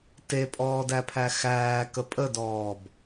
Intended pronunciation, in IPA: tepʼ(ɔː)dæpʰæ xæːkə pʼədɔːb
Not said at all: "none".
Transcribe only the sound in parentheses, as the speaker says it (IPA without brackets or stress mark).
ɔː